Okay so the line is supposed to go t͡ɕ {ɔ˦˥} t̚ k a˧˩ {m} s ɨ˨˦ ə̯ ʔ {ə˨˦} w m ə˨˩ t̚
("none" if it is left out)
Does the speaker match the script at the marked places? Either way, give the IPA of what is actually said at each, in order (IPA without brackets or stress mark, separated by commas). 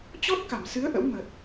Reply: ɔ˦˥, m, ə̰˧˥